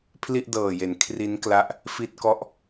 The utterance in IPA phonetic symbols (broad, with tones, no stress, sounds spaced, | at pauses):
pʰ l i˥˩ ʔ d ɤː˨˩ j e˩˦ n kʰ r i˦˥ n k l a˦˥ ʔ | f i˥˩ t̚ k ɔ˥˩ ʔ